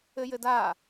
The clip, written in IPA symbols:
ɘ j ɘ d a

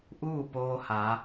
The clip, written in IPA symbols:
ʔ uː˥˨ p oː˧ h aː˩˧

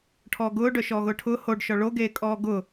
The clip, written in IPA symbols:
ʈʰ ɔː ɡ ʊː ɖ œ ʃ ɔː ɣ ʊː ʈʰ ʊː h o ɖ ʃ ɔ ɭ o ɡ eː kʼ ɔː ɡ ʊ

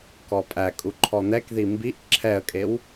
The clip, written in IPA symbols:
k ɔ pʼ æ kʼ u ǃʰ ɔ n̪ ɛ k ð i m b i ʔ ǁʰ ɛ ə̯ kʼ e w

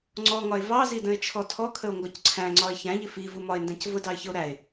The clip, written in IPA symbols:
ŋ͡ǀ ɔ ŋ ɒ e̯ v ɑ z i d ə̃ e̯ t͡ʃʰ ɔ tʰ ɔ kʰ ə o̯ ŋ ɡ ɒ c ǀʰ æ̃ ŋ͡ǀ ɒ e̯ ç æ̃ ʎ ɪ f i v u m ɒ e̯ n d æ̃ c v ʊ d ɑ e̯ ç ə o̯ ɾ æ e̯

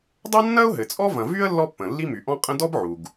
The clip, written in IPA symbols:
dˤ ɐ˥ nː ɐ˥ ʊ̯ ɦ ɘ˩ t͡sʼ ɔ˥ v ɐ̃˩ v y˥ ə̯ lː ɔ˥ pː ə̃˩ lː i˥ m y˩ ʔ ɔ̃˥ qʼ ə̃˥ d ɔ˥ b ʕ u˩ ɡ

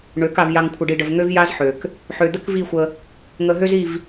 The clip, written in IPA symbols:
ɳ ø˨˦ k a˨ v j a˨ ŋ kʷʰ ə˨ ɖ i˨ ɖ ə˨ v ŋ ø˦ v j a˦ z ħ ø˨ k | ħ ø˨ d̪ ə˦ k v i˦˨ xʷ ə˦ | ŋ ə˨ ɦ ø˦ z i˦˨ v

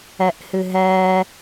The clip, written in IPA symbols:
ɛ ʔ h ɨ ɦ ɛ

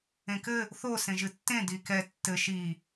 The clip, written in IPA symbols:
ẽ k ɘ | θ o s ẽ ʒ ɨ tː ẽ d i k ɛ tː ɘ ʃ i

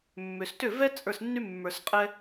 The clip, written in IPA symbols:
mː ʏ˩ s t ʏ˥˩ v ɛ˥ t͡sʼ ə˞˥˩ s nː y˥ mː ə˞˩ s qʼ ɛ˧

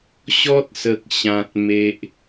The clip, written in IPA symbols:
ɕ ɔ˦ t̚ s ə˨ k̚ ɕ ã˨ t̚ m e˨ ʔ

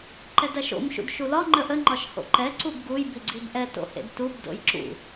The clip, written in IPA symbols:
ǃ ɛ d ɐ ʃ o̰ m ʃ ṵ d ʃ u l ɒ ŋ͡ǃ ə ʔ ə ŋ͡ǃ ɒ ʃ h o̰ ǃ ɛ ǀ u b ɡ u j b i ɡ͡ǀ i b ʔ ɛ t o̰ h ḛ d t u b d o̰ j ǁ ṵ

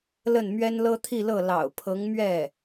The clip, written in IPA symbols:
l ə˥˩ n m ɥ ɛ˥ n l ɤ˥ t̪ʰ i˥˧ l ɤ˥˩ l ɑ̰˨˩ ʊ̯ pʰ ɤ˧˥ ŋ m ɥ ɛ˥˩

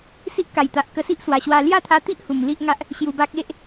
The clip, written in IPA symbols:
s i˦ ʔ k a˨˩ j t̪ a˨ ʔ k ə˧ s i˦ ʔ s w a˨˩ ɕ w a˧ l j a˥˧ t̪ʰ a˧ t̪ i˦ ʔ h u˨˩ m l i˦ ʔ ŋ a˦ ʔ | ɕ j u˧ b a˦ k̚ e˦ ʔ

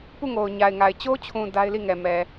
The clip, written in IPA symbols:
p u˦˨ ŋ o˨ ʊ̯ ɲ a˨ ɪ̯ ŋ a˨ ɪ̯ t͡ɕ o˦ t͡ɕʰ ũ˨ d a˦ ɪ̯ l i˦˨ ŋ ɛ˨ m ɛ˨

